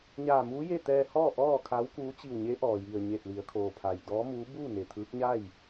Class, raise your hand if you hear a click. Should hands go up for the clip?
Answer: no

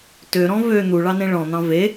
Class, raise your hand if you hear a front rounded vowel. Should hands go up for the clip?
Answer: yes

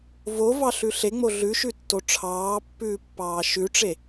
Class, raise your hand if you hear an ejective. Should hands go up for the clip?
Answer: no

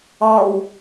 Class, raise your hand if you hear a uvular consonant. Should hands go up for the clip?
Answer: no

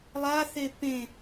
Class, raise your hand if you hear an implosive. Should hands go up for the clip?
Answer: no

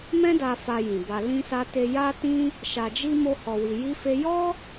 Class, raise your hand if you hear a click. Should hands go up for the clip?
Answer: no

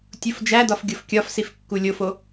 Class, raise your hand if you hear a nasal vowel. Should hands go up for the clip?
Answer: no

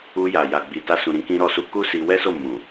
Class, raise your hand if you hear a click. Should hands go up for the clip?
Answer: no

